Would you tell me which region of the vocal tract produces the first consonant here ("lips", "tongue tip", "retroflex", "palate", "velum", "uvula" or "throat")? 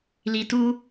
tongue tip